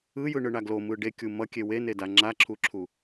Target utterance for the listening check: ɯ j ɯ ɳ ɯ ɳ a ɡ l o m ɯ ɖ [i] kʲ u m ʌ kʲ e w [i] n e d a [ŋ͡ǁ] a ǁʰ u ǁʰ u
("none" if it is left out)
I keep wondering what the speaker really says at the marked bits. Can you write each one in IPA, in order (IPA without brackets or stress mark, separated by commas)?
e, e, ŋ͡ǁ